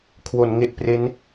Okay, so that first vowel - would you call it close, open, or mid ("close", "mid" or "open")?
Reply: mid